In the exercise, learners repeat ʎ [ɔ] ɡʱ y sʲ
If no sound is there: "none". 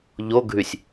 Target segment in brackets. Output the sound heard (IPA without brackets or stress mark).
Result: o